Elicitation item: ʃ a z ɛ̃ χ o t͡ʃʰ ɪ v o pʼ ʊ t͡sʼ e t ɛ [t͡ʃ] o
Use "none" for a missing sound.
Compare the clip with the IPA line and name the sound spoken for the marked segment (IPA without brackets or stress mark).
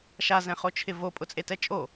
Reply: t͡ʃʼ